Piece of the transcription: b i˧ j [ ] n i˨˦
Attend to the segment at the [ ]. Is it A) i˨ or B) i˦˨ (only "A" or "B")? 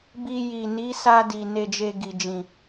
A